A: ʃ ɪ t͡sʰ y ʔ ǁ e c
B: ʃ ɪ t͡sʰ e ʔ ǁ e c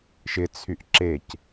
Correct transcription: A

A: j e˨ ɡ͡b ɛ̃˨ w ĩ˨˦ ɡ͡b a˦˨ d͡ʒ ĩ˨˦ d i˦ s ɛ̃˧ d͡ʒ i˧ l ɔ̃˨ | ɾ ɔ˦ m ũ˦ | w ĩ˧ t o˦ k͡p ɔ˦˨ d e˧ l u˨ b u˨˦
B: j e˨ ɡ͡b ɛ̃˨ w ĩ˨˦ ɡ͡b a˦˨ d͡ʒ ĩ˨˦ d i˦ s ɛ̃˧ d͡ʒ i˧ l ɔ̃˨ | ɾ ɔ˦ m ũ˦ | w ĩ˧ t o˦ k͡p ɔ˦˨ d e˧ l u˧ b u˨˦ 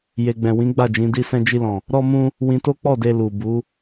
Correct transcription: A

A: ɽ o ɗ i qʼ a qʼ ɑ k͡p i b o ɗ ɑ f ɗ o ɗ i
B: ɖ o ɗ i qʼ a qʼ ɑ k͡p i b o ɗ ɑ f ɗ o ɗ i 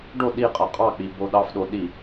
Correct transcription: B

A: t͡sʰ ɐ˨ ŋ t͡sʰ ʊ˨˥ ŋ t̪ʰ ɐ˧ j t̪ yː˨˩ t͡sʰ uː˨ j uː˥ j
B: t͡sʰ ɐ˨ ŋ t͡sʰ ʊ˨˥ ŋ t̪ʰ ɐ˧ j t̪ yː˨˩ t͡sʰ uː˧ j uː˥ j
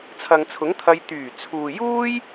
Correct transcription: A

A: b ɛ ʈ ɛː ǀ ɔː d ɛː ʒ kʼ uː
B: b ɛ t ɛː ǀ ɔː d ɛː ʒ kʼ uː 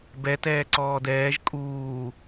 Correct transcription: B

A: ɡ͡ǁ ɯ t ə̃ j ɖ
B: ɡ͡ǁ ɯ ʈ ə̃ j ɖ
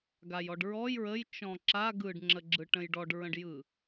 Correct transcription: B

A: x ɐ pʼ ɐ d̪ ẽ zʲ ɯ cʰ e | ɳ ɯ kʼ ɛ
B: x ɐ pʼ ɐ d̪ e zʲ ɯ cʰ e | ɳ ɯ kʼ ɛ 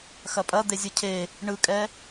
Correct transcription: B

